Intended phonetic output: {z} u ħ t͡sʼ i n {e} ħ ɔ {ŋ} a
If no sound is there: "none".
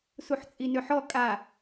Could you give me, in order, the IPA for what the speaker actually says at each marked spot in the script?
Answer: s, ø, kʼ

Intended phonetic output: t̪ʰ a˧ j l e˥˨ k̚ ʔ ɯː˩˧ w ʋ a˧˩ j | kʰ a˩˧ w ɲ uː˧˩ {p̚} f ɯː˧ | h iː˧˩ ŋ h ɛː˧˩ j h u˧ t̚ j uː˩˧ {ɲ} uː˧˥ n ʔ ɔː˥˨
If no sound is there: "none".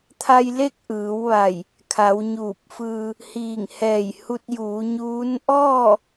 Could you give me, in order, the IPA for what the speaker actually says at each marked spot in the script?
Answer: p̚, ɲ

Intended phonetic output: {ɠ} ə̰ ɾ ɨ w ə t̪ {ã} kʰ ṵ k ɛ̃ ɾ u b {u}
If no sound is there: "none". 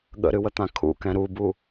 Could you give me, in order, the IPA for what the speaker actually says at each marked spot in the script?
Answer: ɠ, ã, u

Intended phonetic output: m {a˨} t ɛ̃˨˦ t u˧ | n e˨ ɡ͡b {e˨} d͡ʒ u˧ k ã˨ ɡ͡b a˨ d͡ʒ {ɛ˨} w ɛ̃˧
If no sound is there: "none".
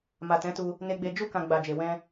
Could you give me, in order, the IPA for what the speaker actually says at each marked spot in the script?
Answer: a˨, e˨, e˨

